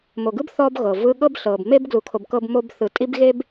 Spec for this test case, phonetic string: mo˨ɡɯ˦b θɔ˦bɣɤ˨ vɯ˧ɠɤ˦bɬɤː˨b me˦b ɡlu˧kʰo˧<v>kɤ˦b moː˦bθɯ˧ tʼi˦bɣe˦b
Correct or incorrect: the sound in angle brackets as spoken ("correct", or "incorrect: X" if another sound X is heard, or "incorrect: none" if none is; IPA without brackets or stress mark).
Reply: incorrect: b